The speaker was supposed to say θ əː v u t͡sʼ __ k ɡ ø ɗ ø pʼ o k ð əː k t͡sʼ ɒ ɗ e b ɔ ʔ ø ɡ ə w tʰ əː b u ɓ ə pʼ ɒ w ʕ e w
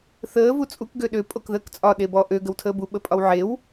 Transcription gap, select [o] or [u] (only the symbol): u